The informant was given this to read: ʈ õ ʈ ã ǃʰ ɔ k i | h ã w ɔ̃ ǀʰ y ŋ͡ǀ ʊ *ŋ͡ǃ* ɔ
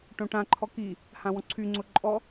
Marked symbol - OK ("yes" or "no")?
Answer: no